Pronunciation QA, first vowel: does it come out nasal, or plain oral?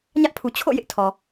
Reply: oral